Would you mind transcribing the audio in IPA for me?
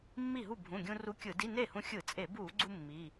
mː i˥˩ ɦ u˥˩ bʱ ũ˩˧˩ ɡʲ ũ˧ r u˧˥ kʲ ɯ˧˩˧ d i˧˥˧ n e˥˩ h ũ˧ xʲ ɯ˧˩˧ t͡sʼ e˧˩˧ b u˧˩˧ ɡ͡ǀ u˧ mː i˩˧˩

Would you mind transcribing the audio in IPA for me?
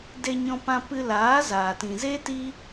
d e˧ ɲ ɔ̃˧ p ã˧ p ɨ˧ l aː˨˦ z aː˨ t ĩ˨ z e˦ t i˦

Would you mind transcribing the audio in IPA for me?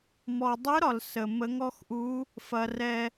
m ɔ˧ dˤ ɯ˦˥ ɾ ɒ˧ l s ə˧ m ə˦˥ ŋ ɔ˦˥ x ʔ u˦˥ | f ɐ˧ r ɛ˧

